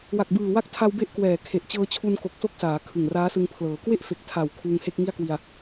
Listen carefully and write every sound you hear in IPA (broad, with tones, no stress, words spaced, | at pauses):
wa˨˩k̚bɯː˨˩ wa˥˩k̚tʰa˧w be˥˩ʔkwɛː˨˩ kʰe˨˩ʔt͡ɕɤː˦˥t͡ɕʰu˧n ko˨˩k̚so˥˩k̚saː˩˦ kʰɯ˨˩ŋraː˦˥sɯ˧ŋ pʰlɤː˩˦kwe˥˩ʔfe˨˩k̚ tʰa˨˩w kʰuː˧ŋhe˥˩k̚ ŋi˥˩a̯kwi˧a̯